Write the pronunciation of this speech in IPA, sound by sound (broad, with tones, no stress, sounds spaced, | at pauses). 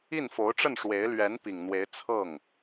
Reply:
i˥˩ n f o˧˥ ʊ̯ ʈ͡ʂ ə˥˩ n ʂ w e˧˥ ɪ̯ l ɥ ɛ˧˥ n p i˨˩ ŋ n̪ w e˧˥ ɪ̯ t͡sʰ ɤ˥˩ ŋ